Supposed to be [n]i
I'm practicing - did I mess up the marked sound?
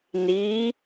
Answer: no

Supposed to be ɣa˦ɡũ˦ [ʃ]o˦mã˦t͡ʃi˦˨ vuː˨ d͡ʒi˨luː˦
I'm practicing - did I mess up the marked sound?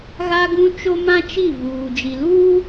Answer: yes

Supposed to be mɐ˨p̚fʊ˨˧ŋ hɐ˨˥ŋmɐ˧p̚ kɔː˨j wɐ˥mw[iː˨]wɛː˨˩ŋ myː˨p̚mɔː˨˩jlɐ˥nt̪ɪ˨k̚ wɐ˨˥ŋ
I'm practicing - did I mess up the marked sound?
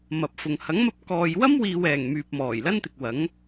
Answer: no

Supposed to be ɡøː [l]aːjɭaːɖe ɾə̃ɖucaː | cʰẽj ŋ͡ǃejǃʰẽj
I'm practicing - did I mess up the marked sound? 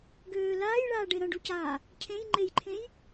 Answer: no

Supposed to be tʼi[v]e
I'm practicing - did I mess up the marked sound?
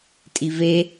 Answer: no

